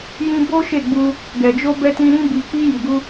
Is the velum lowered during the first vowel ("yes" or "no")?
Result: yes